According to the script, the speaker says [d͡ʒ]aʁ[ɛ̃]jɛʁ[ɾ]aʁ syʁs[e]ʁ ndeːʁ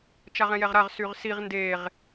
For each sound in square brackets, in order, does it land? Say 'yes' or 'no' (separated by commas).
no, yes, yes, no